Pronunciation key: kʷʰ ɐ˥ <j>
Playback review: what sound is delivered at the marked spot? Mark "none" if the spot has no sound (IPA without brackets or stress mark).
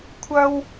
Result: w